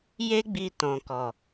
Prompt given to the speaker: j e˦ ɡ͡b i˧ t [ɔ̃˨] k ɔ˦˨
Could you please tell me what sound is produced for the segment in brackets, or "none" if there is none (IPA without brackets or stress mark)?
ɔ̃˦